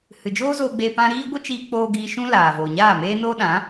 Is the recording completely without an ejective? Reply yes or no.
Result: yes